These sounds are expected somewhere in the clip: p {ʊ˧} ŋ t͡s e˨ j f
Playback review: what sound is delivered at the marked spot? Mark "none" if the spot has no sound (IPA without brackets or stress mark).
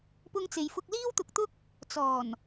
ʊ˧